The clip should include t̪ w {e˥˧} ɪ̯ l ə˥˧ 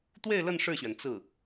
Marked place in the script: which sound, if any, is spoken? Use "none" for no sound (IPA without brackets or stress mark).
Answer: e˥˧